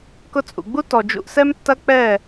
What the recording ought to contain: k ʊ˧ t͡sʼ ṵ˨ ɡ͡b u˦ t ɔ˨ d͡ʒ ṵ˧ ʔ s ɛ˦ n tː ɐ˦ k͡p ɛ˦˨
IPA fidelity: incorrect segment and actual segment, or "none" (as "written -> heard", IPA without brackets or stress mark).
n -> m